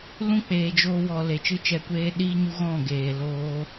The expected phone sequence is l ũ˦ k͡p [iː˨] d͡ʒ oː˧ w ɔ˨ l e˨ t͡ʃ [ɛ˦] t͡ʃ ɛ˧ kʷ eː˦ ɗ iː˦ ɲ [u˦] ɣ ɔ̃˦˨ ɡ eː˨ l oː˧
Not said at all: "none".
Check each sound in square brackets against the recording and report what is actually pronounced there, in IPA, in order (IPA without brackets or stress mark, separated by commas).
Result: eː˨, ɨ˦, u˦